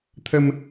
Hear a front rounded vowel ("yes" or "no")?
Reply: no